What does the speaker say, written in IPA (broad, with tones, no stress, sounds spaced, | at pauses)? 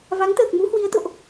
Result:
v a˨˦ ŋ t̪ əː˨˩ k̚ m u˨˦ h w i˨˦ ə̯ t̪ o̰˧˨ ʔ